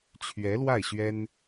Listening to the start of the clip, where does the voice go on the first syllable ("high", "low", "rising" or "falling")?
rising